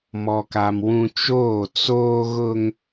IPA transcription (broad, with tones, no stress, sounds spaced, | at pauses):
m ɔ˨ k a˨ m w ũ˦ t͡ʃ oː˦˨ t͡s oː˦ ɣ ʊ˦ ŋ